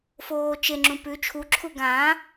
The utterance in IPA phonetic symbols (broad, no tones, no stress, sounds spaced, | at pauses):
f oː t͡ʃ e ŋ͡ǁ ũ p ʉ t͡ʃʰ u ǁʰ u ɡ ã